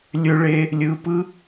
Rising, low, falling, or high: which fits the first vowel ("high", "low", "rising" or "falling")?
high